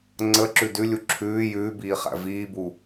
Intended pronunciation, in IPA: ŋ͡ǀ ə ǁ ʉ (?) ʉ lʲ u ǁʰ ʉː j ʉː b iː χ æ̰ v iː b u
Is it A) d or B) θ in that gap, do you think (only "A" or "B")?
A